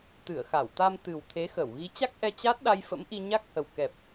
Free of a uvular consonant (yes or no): yes